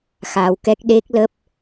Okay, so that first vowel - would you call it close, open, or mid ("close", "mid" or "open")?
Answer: open